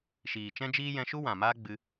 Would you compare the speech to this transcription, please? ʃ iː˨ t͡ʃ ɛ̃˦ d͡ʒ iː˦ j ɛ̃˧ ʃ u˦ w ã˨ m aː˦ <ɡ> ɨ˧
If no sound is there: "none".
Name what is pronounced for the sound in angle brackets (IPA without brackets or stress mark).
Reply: ɡ͡b